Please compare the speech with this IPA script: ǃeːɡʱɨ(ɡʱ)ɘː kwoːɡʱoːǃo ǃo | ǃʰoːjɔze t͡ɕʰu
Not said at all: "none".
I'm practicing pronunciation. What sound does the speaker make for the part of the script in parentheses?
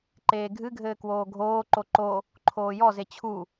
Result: ɡʱ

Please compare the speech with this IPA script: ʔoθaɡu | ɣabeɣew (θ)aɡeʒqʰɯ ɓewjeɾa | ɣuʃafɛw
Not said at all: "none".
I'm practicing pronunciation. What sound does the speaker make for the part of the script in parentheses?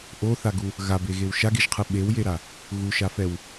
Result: ʃ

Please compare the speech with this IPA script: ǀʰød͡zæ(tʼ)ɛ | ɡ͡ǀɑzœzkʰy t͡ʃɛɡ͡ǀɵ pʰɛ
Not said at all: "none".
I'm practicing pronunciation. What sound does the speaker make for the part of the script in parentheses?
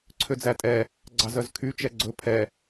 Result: tʼ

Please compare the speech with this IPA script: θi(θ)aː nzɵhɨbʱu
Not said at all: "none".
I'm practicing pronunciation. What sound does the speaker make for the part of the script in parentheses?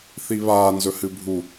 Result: β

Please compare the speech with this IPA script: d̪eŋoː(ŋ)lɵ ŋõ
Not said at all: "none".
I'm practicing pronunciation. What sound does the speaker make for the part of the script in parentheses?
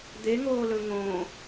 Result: none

